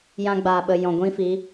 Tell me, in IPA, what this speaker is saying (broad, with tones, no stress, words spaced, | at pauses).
jã˧ɡ͡baː˨ɓə˨ jɔ̃˨ɡʷĩ˦fi˨˦